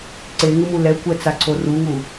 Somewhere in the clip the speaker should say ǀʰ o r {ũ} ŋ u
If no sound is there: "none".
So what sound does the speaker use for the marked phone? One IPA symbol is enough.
u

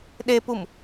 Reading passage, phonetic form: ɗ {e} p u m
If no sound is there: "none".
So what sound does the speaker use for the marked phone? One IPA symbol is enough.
e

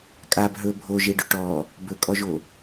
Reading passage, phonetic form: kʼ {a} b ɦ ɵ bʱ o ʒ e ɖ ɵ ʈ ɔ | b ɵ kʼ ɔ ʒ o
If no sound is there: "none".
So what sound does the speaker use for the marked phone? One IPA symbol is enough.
a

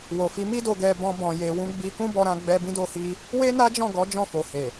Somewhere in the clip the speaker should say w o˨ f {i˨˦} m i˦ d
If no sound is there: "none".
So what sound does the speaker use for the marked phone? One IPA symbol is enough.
i˨˦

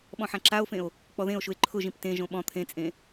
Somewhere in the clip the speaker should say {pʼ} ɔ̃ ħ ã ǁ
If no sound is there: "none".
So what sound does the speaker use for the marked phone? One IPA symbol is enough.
ɓ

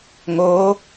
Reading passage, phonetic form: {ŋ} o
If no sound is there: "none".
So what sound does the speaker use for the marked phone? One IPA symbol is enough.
ŋ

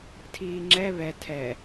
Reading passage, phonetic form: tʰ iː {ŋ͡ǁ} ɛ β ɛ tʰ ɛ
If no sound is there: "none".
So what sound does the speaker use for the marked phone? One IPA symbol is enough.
ŋ͡ǁ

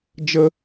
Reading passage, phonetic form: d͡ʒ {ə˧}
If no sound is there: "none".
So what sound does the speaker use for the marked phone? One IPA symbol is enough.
ə˧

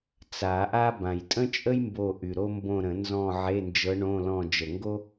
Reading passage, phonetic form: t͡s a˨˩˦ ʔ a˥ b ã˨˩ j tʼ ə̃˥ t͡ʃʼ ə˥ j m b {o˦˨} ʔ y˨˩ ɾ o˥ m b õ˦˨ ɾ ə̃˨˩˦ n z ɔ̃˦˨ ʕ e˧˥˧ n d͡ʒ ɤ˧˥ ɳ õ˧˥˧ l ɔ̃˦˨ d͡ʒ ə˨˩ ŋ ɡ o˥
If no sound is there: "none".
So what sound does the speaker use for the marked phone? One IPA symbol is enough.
o˦˨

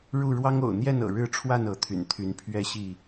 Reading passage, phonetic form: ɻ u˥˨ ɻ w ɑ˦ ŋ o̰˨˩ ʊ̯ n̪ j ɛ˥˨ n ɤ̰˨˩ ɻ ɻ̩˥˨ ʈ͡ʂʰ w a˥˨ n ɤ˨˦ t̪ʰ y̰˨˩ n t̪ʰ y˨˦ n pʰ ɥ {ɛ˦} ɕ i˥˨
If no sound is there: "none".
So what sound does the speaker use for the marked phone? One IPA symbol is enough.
ɛ˥˨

